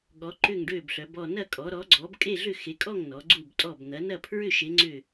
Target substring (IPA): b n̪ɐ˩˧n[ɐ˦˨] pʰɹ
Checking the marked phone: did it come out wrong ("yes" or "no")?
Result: no